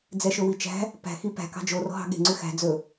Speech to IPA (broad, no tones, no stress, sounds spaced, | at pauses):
d͡z ɛ ʃ ɵ w i t͡ʃ æ̤ | p æ̤ x i p æ̤ k ɑ̤ d͡ʒ o r ɔ̤ ɦ ɑ̤ ɠ e̤ ŋ͡ǀ ʉ x æ̤ d͡z ɵ